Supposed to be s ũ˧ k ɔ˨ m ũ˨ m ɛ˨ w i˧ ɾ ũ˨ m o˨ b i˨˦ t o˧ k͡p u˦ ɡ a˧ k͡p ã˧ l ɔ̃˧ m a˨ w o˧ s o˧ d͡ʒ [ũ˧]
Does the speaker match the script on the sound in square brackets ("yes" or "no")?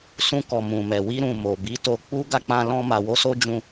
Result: yes